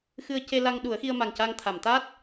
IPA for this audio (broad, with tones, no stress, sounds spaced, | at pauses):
x ɨ˧ ə̯ c e˧ l a˧ ŋ ɗ u˨˩˦ ə̯ x i˧ ə̯ m a˨˩ ŋ c a˧ ŋ t̪ʰ a˨˩˨ m t̪ a˦˥ t̚